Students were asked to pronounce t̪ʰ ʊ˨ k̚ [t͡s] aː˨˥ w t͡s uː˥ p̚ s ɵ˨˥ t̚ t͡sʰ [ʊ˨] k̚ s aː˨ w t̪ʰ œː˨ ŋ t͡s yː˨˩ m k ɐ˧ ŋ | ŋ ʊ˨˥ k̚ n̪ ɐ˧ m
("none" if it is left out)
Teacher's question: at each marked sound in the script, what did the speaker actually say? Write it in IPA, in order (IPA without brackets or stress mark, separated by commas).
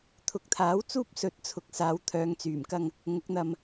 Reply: t̪ʰ, ʊ˨